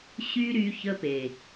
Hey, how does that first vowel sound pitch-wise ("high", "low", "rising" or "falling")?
high